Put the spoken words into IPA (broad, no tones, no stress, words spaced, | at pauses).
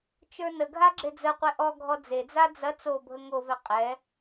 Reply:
t͡ʃə˞nəɡʱa ɡ͡ǁed͡zəqʷɛ ʔɔɡʱɔ d͡zed͡za d͡zɐ t͡sobʱə ŋovɛ qʼɛ